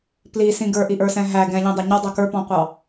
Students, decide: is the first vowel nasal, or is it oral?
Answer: oral